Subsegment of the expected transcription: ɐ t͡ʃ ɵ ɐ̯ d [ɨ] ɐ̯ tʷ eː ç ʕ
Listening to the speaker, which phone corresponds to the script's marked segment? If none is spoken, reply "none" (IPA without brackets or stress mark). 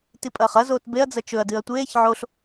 ɨ